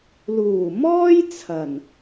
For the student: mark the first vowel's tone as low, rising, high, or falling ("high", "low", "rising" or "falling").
low